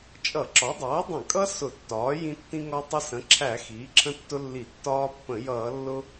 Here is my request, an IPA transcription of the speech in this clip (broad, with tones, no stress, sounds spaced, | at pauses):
t͡ʃʼ ʌ˧˩˧ ǁ ɒ˩˥ dˤ ʌː˩˥ dˤ ə̃˧˩˧ kʼ ʌ˦ s ʊ˧˩˧ tː ɒː˩˥ j ĩ˦ tː ĩ˦ ŋ ɒ˦ tˤ ɪ˦ s ə̃˩˥ ǁʰ æ˧˩˧ x iː˩˥ ǁʰ ə̃˦ tː ʊ˦ lː i˧˩˧ tː ɒː˦ pː ə̃˧˩˧ j ʌː˧˩˧ lː ʊ˦